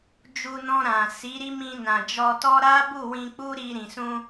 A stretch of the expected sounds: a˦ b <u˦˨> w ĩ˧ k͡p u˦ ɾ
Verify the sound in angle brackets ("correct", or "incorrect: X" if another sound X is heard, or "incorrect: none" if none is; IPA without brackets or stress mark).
correct